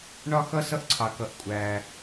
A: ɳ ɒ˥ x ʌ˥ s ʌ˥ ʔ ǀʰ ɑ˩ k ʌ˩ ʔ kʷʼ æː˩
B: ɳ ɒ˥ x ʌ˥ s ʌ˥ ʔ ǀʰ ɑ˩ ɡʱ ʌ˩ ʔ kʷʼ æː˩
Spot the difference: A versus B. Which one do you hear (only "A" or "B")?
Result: A